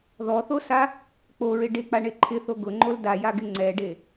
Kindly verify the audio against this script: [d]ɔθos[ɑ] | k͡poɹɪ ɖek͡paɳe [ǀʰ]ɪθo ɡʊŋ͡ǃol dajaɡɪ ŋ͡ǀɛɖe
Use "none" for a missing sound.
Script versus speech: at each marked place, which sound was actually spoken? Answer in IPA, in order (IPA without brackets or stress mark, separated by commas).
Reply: ð, a, ǃʰ